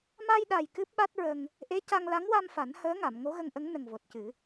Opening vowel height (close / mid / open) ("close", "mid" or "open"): open